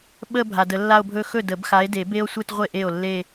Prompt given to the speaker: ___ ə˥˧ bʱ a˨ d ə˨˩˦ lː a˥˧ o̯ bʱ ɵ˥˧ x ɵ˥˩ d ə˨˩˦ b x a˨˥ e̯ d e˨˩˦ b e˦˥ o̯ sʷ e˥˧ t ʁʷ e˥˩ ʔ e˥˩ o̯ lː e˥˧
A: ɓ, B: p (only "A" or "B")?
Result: A